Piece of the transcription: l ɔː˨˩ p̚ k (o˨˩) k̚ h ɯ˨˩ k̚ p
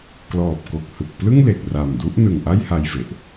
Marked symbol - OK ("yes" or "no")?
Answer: yes